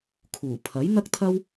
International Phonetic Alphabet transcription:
kʰ uː˨˩ pʰ ɐ˨˥ j n̪ ɐ˥ k̚ t̪ʰ ɐ˥ w

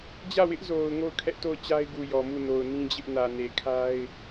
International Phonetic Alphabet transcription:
d͡ʑ ä˦˨ w ɪ˦ ʔ z o˨ ʊ̯ ŋ o˦˨ ʊ̯ kʰ ɛ˦ ʔ t o˦˨ ʊ̯ t͡ɕ a˦ ɪ̯ ɡ u˨ j ɔ˨ m u˦˨ n o˨ ʊ̯ n ĩ˦ d͡ʑ ɪ˦ ʔ n ä˨ n e˨ kʰ a˦ ɪ̯

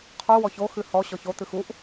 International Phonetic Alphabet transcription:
qʰ u w ɔ ç o x ɨ h ɔ ɕ ɔ ç o t̪ ɨ x u ʔ

